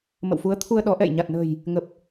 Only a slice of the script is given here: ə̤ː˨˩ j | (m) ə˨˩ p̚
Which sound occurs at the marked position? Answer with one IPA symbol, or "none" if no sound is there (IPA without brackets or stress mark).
ŋ